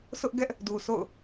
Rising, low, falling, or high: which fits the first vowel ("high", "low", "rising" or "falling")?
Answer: high